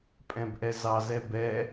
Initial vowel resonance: nasal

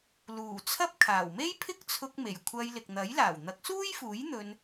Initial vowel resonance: oral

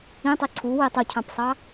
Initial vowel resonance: nasal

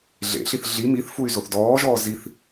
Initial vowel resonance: oral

